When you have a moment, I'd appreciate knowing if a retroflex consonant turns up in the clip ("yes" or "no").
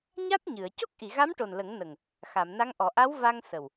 yes